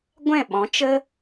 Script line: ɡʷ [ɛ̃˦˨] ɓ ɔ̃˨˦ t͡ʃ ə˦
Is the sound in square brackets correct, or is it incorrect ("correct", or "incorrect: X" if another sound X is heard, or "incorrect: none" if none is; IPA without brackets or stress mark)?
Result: correct